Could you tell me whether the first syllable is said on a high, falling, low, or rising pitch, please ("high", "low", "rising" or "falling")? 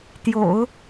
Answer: low